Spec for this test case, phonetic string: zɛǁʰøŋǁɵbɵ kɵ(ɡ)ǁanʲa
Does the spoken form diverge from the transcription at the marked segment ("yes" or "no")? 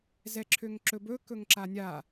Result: yes